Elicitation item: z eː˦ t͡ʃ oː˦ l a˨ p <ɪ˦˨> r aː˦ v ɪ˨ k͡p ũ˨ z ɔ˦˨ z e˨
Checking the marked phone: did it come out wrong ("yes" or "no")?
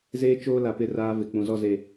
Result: no